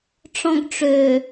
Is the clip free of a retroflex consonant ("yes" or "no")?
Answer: no